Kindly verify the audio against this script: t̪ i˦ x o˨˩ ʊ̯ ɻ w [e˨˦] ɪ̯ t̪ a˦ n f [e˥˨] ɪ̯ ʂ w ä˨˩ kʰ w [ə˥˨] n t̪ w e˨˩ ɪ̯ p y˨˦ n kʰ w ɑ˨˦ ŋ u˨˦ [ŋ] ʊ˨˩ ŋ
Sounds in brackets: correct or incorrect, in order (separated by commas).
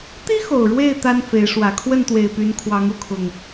incorrect, incorrect, correct, incorrect